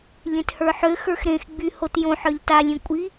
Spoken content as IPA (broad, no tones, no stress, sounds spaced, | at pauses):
ʎ ẽ t h ə˞ ħ ø x ə˞ x ɾ ẽ x ɡ͡b y h o t j õ ħ ə˞ ʎ t a lʲ ẽ kʷʼ i